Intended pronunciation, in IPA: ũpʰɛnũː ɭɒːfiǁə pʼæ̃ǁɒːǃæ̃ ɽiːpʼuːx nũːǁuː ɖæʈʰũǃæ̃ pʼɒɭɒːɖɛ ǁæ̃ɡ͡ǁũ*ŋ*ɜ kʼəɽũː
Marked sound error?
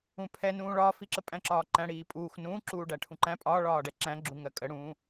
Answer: no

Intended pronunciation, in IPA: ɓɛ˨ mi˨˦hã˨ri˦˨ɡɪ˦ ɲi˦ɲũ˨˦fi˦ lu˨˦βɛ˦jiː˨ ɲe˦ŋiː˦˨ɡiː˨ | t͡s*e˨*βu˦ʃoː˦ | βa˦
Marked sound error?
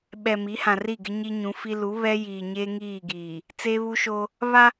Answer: yes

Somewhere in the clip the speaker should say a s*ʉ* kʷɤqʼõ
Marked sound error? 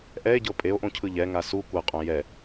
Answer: yes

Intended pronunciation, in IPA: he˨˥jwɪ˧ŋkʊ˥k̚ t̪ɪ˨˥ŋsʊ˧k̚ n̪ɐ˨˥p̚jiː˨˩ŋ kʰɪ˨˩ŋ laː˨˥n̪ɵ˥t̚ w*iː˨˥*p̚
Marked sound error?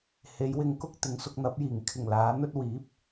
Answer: no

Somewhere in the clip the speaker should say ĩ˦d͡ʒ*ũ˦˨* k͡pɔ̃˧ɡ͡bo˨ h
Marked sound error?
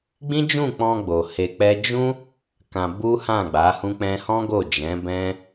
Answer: no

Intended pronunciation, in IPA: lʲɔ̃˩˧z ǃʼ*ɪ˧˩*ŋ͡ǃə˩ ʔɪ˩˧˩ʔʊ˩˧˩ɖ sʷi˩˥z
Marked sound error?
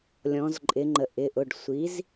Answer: yes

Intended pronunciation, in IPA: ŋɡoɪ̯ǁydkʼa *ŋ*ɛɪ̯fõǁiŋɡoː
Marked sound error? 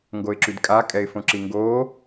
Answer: yes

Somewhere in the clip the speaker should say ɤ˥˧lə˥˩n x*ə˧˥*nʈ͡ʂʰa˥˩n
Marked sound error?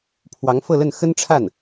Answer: yes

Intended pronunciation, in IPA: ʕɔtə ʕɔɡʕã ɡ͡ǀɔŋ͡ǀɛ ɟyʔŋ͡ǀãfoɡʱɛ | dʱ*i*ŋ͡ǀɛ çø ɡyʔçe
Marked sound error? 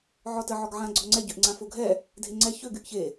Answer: yes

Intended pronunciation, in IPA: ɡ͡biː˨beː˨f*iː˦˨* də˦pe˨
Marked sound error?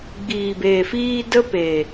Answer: yes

